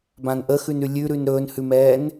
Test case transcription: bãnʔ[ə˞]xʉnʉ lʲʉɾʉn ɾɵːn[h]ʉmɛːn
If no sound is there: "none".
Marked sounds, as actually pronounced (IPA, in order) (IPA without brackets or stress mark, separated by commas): ə, h